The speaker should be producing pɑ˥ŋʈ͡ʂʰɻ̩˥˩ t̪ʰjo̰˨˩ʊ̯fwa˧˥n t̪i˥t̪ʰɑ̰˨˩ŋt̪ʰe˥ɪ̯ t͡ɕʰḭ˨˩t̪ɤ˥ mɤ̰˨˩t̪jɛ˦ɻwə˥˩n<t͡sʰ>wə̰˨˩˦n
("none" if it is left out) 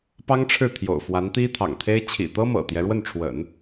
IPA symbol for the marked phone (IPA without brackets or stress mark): ʈ͡ʂʰ